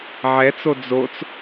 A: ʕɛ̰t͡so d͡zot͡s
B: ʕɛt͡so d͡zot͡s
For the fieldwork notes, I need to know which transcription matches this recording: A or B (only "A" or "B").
B